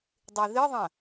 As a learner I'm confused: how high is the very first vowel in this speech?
mid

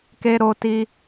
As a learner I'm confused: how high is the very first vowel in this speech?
mid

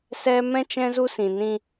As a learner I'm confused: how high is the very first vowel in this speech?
mid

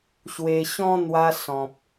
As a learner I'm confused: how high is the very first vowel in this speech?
mid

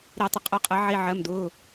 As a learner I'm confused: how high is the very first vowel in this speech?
high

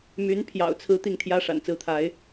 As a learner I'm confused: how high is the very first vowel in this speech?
high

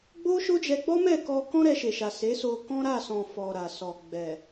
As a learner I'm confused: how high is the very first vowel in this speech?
mid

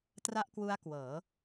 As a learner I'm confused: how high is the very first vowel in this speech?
low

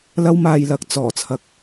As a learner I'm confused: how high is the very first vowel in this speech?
low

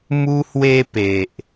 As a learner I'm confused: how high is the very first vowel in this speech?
high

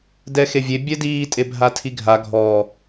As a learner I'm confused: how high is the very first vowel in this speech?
mid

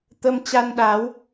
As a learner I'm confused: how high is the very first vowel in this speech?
mid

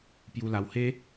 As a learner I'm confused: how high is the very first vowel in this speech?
high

